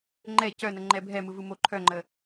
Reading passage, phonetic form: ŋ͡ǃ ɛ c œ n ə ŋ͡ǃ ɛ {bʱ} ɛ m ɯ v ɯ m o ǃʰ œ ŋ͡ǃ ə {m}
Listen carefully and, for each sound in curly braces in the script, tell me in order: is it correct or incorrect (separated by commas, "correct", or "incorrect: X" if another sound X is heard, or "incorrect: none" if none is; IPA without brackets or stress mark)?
correct, incorrect: none